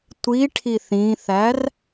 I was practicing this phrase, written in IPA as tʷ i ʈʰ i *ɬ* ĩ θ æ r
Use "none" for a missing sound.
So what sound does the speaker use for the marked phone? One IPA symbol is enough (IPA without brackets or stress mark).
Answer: θ